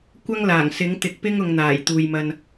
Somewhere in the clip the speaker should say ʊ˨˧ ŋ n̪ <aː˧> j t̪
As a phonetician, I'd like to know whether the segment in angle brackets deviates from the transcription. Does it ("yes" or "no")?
yes